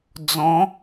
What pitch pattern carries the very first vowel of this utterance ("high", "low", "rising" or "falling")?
rising